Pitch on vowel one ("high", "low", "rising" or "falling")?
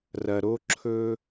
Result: low